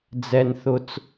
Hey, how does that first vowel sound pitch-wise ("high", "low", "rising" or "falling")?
low